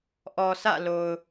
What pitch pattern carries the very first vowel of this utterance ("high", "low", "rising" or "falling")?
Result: low